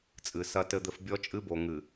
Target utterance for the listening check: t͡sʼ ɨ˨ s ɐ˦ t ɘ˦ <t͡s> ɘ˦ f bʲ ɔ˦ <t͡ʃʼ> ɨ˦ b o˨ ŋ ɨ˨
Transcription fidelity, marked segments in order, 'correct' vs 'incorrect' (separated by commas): incorrect, correct